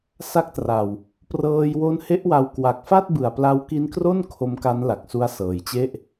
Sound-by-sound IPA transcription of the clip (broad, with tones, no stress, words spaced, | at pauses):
sa˦˥k̚tra˨˩w | prɤː˧jwo˦˥nhe˦˥ʔwa˧w kwa˨˩k̚fa˥˩t̚bɯ˨˩a̯ pla˦˥wki˦˥nkro˥˩n kʰo˦˥mka˦˥nla˨˩k̚ su˦˥a̯sɤː˨˩jt͡ɕe˥˩ʔ